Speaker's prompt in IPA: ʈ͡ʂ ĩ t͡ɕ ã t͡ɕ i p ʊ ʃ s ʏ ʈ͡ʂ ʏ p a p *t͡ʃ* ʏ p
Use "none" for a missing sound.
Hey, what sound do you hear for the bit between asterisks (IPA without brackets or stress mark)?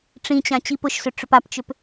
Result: t͡ʃ